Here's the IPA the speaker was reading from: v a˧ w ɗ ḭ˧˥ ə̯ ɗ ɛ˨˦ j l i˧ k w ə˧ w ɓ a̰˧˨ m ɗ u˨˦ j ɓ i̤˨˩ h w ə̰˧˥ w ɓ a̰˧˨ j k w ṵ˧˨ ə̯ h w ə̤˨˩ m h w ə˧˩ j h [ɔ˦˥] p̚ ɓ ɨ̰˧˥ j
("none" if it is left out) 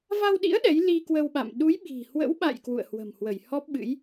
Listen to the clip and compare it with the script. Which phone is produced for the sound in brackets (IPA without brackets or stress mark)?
ɔ˦˥